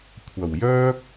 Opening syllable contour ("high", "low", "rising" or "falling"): low